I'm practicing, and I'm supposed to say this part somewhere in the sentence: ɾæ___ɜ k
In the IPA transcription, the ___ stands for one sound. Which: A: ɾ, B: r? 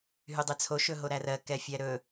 B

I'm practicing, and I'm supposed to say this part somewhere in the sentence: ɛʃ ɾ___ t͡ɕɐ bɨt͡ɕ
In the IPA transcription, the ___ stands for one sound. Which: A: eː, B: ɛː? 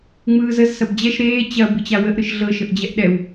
A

